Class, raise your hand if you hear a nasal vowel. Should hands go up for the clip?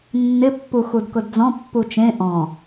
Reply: yes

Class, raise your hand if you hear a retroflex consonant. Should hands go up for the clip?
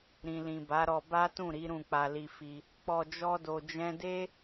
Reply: no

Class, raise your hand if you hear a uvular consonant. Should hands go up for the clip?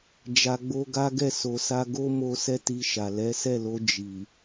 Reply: no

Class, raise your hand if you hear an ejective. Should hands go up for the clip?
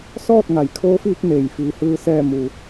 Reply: no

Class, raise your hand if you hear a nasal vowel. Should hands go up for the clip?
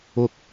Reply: no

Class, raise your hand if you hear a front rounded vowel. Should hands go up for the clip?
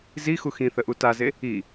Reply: no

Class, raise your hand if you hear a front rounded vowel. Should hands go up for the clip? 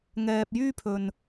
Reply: yes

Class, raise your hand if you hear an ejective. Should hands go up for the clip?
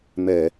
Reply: no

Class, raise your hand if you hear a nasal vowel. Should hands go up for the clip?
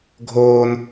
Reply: no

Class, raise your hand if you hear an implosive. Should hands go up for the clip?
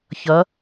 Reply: no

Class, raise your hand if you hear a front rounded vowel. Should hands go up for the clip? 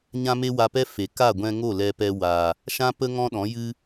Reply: no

